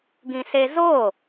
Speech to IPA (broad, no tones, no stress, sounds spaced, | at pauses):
ɡ ĩ s e z o